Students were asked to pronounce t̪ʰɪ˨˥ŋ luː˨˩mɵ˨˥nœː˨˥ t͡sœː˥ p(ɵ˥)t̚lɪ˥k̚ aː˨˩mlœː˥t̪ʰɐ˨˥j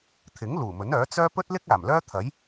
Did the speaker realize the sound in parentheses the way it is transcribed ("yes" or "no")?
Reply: yes